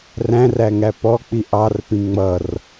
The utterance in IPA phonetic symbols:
r æ̃ r æ ŋ æ p ɔ k͡p i ʔ ɑ r p ĩ ŋ͡m ʌ r

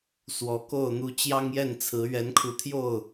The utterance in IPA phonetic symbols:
s w ɔ˨˦ k o˥˨ ʊ̯ n̪ u˦ t͡ɕ j ɑ˦ ŋ j ɛ˥˨ n t͡sʰ ɹ̩˨˦ ɥ ɛ˨˦ n kʰ u˨˦ t̪ʰ j o˥˨ ʊ̯

